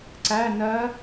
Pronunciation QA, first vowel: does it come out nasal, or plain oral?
oral